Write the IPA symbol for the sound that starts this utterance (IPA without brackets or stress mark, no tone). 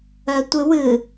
œ